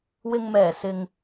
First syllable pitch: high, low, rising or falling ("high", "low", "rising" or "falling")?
low